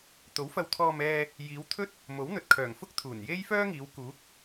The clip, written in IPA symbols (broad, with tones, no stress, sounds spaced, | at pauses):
t̪ o˨˥ w f ɐ˧ w t̪ʰ ɔː˧ m ɛː˧ | j iː˨˧ w t̪ʰ ɵ˥ t̚ | m o˨˥ w n̪ ɵ˨ t̚ kʰ œː˨˩ ŋ f ʊ˥ k̚ t̪ʰ uː˨˩ n j e˥ j f œː˥ ŋ iː˨˧ w k uː˨˥ k̚